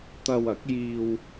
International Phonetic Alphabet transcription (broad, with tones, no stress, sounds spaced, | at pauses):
t̪ ɐ˧ w ɐ˨˥ k̚ j iː˧ w